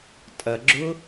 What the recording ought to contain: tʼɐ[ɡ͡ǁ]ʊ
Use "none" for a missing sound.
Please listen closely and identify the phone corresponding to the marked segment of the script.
ɡ͡ǁ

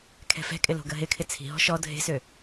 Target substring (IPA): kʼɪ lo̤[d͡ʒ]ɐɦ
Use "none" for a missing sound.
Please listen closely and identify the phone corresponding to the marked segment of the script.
ɡ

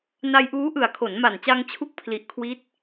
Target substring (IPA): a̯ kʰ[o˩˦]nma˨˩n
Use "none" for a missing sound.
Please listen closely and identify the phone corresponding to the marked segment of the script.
o˩˦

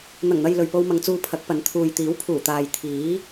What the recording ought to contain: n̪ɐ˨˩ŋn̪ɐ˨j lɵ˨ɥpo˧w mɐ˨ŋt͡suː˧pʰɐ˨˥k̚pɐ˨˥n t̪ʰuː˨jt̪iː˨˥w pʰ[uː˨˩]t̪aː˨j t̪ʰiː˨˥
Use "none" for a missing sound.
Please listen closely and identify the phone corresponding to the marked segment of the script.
uː˨˩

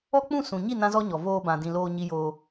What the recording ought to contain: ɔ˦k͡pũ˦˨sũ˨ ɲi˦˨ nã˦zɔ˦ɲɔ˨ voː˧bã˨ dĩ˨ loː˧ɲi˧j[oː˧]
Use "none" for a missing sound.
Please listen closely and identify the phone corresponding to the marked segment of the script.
oː˧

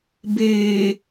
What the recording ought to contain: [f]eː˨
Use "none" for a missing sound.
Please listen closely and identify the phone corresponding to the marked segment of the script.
b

